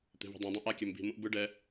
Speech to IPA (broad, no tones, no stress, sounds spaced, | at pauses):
t̪ e̤ v i̤ dˤ ɛ̃ dˤ ũ ʔ a kʲ ɛ m b i̤ m ũ ʔ b ɯ ɖ ɛ